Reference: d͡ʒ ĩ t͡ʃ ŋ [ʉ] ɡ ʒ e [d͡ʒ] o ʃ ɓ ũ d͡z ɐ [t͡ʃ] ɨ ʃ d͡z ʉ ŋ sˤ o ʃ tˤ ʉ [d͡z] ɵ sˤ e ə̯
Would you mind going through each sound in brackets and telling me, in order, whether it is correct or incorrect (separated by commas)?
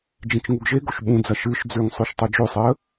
incorrect, incorrect, incorrect, incorrect